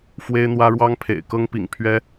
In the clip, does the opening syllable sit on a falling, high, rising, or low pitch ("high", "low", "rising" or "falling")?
high